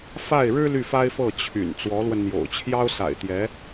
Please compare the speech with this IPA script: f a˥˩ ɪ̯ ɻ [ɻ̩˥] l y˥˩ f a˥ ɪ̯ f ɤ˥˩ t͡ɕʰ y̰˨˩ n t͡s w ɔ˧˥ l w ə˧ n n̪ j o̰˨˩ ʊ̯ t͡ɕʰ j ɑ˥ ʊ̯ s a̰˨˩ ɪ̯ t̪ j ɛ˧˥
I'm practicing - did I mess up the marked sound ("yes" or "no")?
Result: no